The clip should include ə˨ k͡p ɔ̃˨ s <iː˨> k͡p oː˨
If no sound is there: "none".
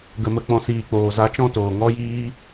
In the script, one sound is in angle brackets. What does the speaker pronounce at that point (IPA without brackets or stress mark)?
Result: iː˨